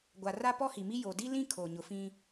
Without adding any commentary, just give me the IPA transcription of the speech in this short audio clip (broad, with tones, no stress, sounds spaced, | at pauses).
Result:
ɡʷ a˨ r a˦ p ɔ˦ h i˨ m i˦ j o˨ d i˦ l ĩ˦ kʰ o˨ ɲ ʊ˨ f ĩ˦